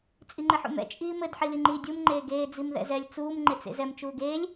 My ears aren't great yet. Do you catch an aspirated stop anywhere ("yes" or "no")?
no